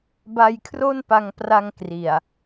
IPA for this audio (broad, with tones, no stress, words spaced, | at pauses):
ba˧jkʰro˥˩npa˧ŋpra˧ŋ kri˨˩a̯